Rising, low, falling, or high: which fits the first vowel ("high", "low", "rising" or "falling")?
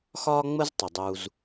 high